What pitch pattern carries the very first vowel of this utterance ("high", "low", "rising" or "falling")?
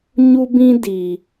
high